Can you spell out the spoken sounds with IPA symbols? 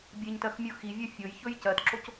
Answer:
bʲ e ɲ t ɜ x mʲ u x i vʲ ɜ fʲ o j ç ɵ j c ɜ t ǁ o c

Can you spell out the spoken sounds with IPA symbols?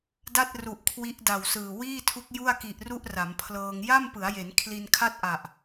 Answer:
d a˥˩ t̚ r u˨˩ ʔ kʰ w i˦˥ ʔ d a˨˩ w s ɯː˨˩ w iː˥˩ tʰ u˦˥ k̚ j u˥˩ a̯ k i˨˩ ʔ r u˥˩ ʔ r a˩˦ m pʰ l ɤː˧ ŋ j a˥˩ m p ɯ˩˦ a̯ j e˩˦ n kʰ l i˧ n kʰ a˥˩ t̚ ʔ a˨˩ ʔ

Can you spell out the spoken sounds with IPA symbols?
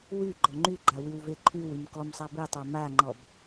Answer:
w y ɡ͡ǃ ɔ ŋ͡ǃ y ɡ͡ǃ a w y w v e ǃʰ y w y m k ɔ m sˤ a b e tˤ a m a ŋ͡ǃ ɔ b

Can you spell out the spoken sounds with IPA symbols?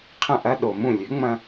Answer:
qʰ ə̃˥˩ ʔ ɐ˥ ɗ o˩ m ũ˥˩ lʲ ʉ˩˥ ŋ͡m ɐ̃˧

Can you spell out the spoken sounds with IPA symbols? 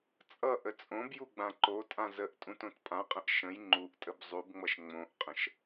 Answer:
t͡sʼ ʌ ʔ ə t͡sʼ õ b j u ɡ͡b ã ǃ o tʼ ã z ə ʔ tʼ ũ t õ t pʼ ã qʼ ə̃ ʔ ʃ ə̃ j ŋ͡ǃ u ʔ tʼ ə b zˤ u b ŋ͡m ʌ ʃ ŋ͡m õ ʔ qʼ ə̃ ʃ

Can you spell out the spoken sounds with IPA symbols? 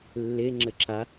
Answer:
lː e ŋ͡ǁ ɘ ǁ a

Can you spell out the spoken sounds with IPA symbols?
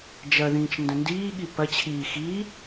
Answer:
d͡ʒ ɐ ð ĩː t͡ʃ n d ɐ̃ n d iː ɠ i p ɐ t͡ɕʰ iː x iː

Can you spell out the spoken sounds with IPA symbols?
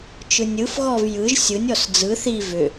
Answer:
t͡ʃ ɯ nʲ ɯ f ɣ ɔ v j ɯ ʒ sʲ ɯ nʲ ɔ s d͡z ɯ θ i v ʏ

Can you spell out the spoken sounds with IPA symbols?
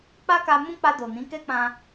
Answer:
k͡p a˦ k a˧ m ũ˦ k͡p a˧ d o˨ n ĩ˨˦ k ɛ˦ k͡p ã˧

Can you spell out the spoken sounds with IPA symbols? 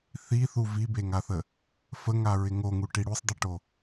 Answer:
θ i θ u v i b e ŋ a θ ə | f ə ŋ a ɹ ɪ ŋ o ŋ u ʈ i ɽ u sˤ dˤ ɪ ʈ o

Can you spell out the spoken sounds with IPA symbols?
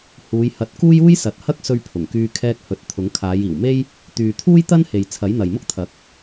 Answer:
h uː˨˧ j h ɐ˨˥ t̚ k uː˥ j uː˥ j s ɐ˨˥ t̚ h ɐ˥ k̚ s ɵ˧ ɥ pʰ ʊ˨˩ ŋ k yː˧ kʰ ɛː˧ k̚ h ɵ˨˥ t̚ t̪ʰ ʊ˨˥ ŋ kʰ aː˨˧ j iː˨˩ w m e˥ j | t̪ yː˨ t̪ʰ uː˥ j t̪ ɐ˥ n h e˨ j t͡sʰ ɐ˨˥ j n̪ ɐ˨ j m ʊ˥ k̚ t̪ʰ ɐ˨˥ k̚

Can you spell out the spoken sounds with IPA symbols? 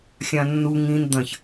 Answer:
xʲ ã nː u ŋ ĩ n d̪ ɐ̃ ç

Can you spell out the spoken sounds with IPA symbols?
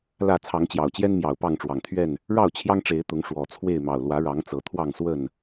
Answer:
l ä˥˨ t͡sʰ ɑ˨˦ ŋ t͡ɕ j ɑ˨˩ ʊ̯ t͡ɕ j ɛ˦ n m j ɑ˨˩ ʊ̯ p ɑ˥˨ ŋ ʈ͡ʂ w ɑ˨˩ ŋ t̪ʰ ɥ ɛ˥˨ n | ɻ ɑ˥˨ ʊ̯ t͡ɕʰ j ɑ˦ ŋ ʈ͡ʂ e˨˦ ɪ̯ t̪ ʊ˨˦ ŋ ʂ w ɔ˨˩ t͡sʰ w e˥˨ ɪ̯ m ɑ˨˩ ʊ̯ l w ä˨˦ ɻ ɑ˨˦ ŋ t͡s ɤ˨˩ t̪ʰ w ɑ˥˨ ŋ s w ə˥˨ n

